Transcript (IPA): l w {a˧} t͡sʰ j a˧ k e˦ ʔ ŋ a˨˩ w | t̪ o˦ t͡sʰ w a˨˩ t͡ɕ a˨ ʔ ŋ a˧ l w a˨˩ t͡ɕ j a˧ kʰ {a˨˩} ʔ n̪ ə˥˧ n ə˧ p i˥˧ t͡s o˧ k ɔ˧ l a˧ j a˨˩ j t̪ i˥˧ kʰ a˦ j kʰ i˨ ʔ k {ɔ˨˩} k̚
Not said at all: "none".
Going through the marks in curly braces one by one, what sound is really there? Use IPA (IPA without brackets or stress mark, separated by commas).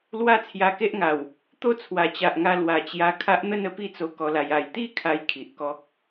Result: a˥˧, a˦, ɔ˦